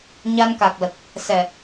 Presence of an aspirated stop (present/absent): absent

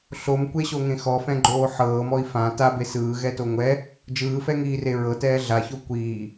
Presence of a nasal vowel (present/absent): present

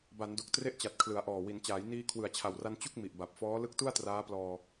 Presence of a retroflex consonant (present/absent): absent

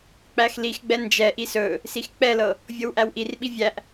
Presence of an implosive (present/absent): present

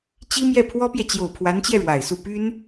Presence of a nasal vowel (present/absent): absent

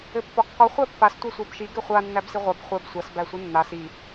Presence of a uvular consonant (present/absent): present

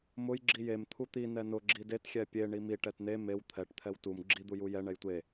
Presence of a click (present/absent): present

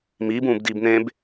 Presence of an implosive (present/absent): absent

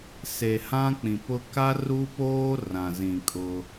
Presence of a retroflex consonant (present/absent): absent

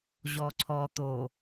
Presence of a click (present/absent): present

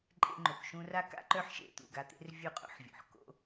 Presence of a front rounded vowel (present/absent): present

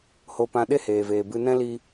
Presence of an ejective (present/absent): absent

